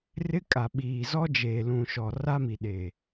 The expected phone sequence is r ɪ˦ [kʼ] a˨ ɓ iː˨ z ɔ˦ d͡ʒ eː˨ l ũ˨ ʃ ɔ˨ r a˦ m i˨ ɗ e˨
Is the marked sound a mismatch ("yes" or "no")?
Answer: no